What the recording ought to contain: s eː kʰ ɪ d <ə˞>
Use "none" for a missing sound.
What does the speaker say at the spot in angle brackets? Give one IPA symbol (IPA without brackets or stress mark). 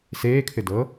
ɤ